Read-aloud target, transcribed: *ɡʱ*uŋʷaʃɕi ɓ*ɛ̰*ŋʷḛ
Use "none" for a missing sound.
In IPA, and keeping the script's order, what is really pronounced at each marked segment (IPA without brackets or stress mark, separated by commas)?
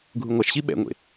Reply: ɡʱ, ɛ̰